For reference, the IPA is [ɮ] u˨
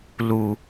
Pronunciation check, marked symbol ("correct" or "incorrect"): incorrect